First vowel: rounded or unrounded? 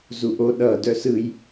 rounded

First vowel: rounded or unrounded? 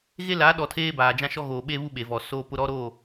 unrounded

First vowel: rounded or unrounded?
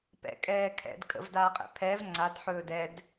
unrounded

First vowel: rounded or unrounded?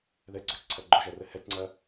unrounded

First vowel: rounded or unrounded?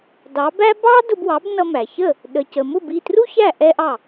unrounded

